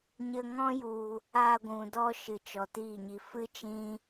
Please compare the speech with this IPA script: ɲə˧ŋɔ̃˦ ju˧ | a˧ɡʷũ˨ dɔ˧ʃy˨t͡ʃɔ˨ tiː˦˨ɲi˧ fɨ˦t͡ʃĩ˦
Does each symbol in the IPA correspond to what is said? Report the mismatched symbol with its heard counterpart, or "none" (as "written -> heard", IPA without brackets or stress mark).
y˨ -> ɨ˨